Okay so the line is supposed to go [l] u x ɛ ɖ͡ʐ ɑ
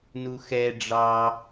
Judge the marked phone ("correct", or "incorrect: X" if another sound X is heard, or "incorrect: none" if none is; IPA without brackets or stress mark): incorrect: n